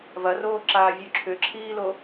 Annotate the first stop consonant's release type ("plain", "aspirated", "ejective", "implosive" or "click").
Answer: click